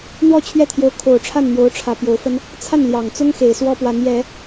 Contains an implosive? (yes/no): no